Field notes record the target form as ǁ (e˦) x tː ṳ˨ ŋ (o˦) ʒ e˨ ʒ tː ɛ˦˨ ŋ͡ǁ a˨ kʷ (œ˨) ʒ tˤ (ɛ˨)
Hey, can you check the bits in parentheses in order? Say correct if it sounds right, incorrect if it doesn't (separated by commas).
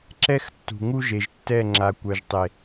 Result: incorrect, incorrect, correct, incorrect